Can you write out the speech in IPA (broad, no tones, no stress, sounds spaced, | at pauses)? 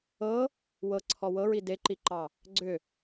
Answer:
ɤ | w ɤ ǀʰ ɔ w ɤ ɹ i d e ǃ i ǃ ɑ | ɡ͡ǀ ʏ